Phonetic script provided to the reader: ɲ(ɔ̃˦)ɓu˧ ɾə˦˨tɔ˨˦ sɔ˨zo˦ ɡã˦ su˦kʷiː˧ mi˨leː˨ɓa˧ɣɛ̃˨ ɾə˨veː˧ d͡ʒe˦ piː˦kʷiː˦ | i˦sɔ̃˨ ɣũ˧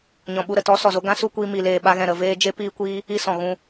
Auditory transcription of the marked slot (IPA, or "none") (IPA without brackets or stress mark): ɔ̃˨